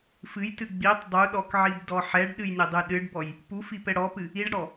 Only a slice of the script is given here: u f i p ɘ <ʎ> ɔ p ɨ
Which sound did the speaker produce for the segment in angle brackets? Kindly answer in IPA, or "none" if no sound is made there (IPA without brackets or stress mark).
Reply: ɽ